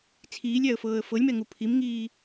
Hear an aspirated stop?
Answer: yes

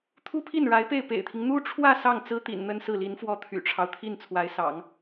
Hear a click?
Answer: no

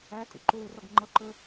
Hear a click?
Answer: yes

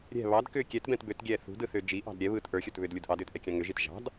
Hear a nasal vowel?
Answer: yes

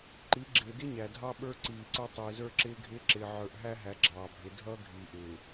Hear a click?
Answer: yes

